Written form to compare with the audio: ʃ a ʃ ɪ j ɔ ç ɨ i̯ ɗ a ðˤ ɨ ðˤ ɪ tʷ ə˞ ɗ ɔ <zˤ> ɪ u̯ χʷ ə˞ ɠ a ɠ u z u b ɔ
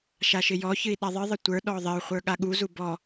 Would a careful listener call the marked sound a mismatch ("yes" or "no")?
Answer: yes